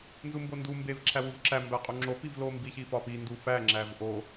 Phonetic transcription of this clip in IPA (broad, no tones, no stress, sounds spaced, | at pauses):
n z u m b o n d u m b e v ǁʰ æ w u v ǁ æ m b æ qʼ u ŋ͡ǁ o p i v l o m b i ç i f ɒ p i n d u f æ ŋ͡ǁ æ v ʔ o